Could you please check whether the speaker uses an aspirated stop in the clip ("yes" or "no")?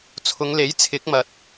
yes